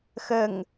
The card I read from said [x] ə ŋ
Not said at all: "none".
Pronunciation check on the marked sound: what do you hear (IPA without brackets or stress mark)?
x